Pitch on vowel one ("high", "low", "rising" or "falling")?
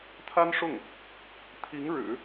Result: high